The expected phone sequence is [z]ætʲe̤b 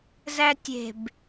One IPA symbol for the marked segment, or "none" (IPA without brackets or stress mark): z